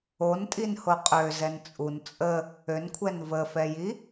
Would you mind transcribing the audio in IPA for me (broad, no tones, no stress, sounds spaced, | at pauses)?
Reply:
o n tʼ i n h o qʼ ø z ɛ n t͡sʼ u n t͡sʼ ə | ø n kʷʰ ɛ n v ə f ɛ j i